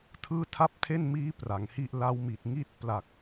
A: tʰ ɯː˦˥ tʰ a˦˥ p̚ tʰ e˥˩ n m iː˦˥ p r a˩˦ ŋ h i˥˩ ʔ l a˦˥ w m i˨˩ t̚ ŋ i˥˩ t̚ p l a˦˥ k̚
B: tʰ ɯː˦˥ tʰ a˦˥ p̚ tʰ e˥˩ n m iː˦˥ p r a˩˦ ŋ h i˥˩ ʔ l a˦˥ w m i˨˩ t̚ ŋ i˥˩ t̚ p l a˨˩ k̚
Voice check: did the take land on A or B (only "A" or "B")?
B